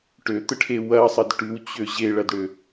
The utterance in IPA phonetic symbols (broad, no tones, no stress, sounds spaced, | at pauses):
ʈ ø t̪ ə ʈʰ e w ɐ sˤ ə d ʈ ʉ w t͡ɕ ø ʑ e ɭ ɐ d ɽ ø